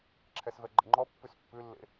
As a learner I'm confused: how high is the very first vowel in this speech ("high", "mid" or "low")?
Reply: mid